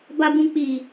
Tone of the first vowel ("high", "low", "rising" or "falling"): low